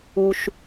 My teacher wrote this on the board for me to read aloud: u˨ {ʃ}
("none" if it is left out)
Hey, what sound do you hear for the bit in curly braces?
ʃ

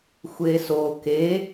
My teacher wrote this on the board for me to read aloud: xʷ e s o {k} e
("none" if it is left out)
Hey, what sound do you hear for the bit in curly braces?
k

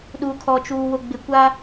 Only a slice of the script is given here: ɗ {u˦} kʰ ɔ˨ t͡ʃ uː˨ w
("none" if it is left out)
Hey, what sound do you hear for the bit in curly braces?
u˨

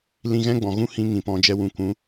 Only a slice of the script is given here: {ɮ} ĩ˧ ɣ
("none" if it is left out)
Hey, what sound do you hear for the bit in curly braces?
l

